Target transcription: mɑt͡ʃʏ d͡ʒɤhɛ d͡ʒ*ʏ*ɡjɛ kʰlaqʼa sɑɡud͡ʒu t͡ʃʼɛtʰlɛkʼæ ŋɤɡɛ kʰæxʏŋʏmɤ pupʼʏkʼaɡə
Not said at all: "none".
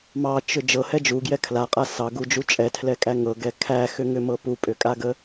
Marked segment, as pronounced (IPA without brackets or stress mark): u